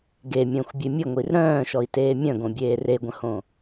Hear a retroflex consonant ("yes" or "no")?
no